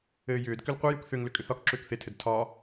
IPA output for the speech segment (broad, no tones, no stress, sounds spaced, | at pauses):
ɘː j ʏː d k ʏ l qʷ ɘ j u k θ ʏ ŋ l ʏ kʼ ʏ θ ɒ k ǁ ʏː k θ ɪ tʰ ɘ d tʰ ɒ